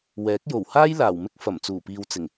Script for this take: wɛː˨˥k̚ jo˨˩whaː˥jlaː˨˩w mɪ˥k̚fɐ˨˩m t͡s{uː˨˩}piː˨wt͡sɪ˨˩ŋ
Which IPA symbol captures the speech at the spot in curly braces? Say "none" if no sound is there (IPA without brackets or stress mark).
uː˨˩